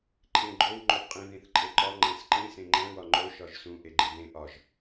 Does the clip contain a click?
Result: yes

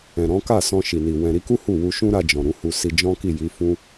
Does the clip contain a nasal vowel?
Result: yes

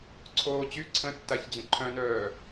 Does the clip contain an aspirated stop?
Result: yes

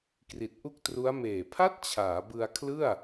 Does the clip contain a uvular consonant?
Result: no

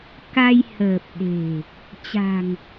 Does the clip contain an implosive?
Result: yes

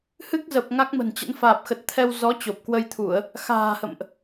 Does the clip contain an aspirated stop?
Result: yes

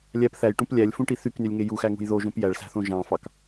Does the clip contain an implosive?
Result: no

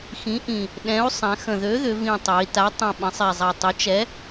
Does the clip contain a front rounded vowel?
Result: yes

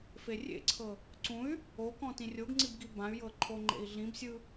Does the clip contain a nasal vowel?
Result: yes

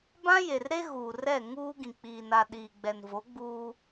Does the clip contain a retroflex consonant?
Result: no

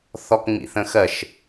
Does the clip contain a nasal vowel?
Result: yes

